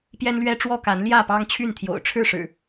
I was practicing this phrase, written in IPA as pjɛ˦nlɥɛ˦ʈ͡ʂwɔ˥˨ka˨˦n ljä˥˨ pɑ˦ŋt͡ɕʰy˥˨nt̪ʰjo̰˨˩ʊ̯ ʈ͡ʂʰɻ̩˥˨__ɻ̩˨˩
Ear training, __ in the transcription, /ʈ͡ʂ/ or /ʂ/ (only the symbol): ʂ